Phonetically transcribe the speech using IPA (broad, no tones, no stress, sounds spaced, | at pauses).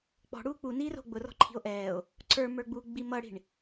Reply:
k͡p ɔ̤ ɽ uː k͡p u n iː r o̤ ɡ͡b ʊ r ɔ̤ ǃʰ i̤ o̯ ʔ ɛː o̯ | ǀ ə˞ m ə˞ ɡ͡b uː ɡ͡b i m ʌ ɽ i̤ ɳ